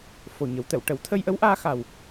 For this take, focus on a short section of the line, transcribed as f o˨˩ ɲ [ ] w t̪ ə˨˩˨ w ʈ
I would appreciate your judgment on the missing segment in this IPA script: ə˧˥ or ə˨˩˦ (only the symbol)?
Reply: ə˨˩˦